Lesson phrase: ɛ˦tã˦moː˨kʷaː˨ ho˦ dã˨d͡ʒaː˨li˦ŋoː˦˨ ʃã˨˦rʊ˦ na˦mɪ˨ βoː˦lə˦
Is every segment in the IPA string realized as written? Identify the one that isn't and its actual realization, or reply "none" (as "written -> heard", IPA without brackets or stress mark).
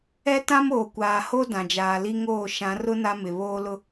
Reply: ə˦ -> ʊ˦